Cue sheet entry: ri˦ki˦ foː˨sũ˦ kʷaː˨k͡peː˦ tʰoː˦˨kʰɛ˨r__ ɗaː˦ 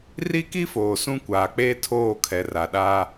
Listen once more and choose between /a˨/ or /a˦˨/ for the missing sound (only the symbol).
a˨